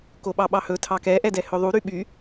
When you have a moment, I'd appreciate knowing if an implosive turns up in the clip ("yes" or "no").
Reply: yes